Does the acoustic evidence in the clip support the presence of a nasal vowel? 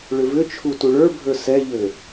no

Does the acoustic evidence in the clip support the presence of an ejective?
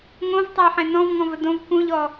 no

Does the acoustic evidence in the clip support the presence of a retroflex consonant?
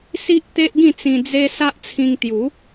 no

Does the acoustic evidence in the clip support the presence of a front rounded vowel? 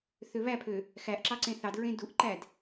yes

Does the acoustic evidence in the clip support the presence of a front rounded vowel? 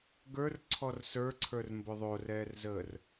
no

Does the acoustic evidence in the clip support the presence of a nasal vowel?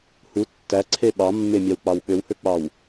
no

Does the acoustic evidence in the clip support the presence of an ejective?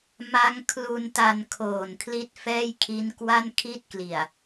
no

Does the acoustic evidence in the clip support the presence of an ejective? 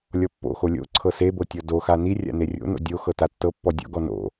no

